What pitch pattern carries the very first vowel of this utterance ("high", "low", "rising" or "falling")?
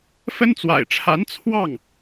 high